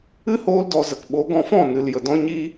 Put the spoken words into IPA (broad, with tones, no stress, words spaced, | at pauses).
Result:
ɨ˦hoː˧ldɔ˨zə˨k ɓo˨˦ɡɔ̃˧ fɔ̃˦˨nɨ˨l jə˨dɔ̃˦ ɲi˧